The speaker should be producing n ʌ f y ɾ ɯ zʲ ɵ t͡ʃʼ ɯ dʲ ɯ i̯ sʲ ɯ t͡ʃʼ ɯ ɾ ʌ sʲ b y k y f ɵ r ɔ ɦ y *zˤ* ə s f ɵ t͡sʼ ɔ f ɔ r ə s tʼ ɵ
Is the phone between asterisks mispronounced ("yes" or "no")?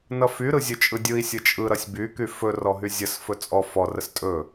yes